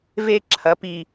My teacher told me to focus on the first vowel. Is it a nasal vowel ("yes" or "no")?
no